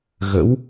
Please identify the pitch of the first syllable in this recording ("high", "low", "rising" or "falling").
rising